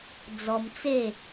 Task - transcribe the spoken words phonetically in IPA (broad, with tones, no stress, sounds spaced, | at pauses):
d͡z ɔ˧ m t͡s e˥˧